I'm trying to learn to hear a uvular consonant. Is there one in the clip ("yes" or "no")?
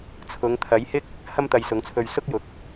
no